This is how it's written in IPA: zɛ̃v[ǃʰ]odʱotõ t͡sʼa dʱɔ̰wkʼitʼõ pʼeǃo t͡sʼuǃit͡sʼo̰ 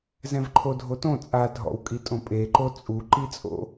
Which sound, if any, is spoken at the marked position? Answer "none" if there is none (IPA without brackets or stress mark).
ǃʰ